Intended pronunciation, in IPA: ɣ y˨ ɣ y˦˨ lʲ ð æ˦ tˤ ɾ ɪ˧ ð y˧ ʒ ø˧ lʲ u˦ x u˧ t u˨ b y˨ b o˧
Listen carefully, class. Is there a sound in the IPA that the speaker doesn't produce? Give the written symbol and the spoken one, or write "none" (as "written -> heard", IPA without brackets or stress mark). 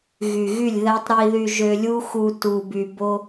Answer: ɪ˧ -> i˧